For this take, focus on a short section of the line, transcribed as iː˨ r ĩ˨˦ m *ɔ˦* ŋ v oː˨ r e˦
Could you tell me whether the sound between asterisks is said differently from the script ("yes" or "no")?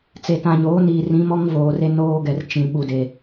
no